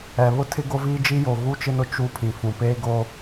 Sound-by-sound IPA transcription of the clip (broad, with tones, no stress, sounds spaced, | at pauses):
ɛ˨ β ʊ˦ tʰ ɪ˦ ɡ o˦ v iː˦ d͡ʒ i˦ j o˨ ɣ u˦ t͡ʃ ɪ˦ n ʊ˦ t͡ʃ u˦ pʰ ĩ˨ f ũ˨ p eː˦ ɡ o˦